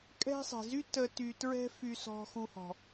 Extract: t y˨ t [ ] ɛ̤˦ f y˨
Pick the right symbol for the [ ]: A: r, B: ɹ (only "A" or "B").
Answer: B